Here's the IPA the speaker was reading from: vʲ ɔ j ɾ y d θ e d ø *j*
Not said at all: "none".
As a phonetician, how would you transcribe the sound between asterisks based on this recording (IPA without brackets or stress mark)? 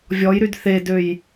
j